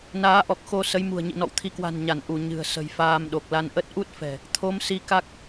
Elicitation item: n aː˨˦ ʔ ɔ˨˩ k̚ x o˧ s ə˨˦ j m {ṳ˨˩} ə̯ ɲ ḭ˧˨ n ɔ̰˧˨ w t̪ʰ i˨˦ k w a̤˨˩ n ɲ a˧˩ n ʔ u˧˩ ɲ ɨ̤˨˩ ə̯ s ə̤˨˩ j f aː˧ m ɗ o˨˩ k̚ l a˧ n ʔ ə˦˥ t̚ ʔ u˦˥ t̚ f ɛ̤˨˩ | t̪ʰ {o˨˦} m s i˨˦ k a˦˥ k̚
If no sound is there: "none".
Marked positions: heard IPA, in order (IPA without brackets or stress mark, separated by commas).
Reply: ṳ˨˩, o˨˦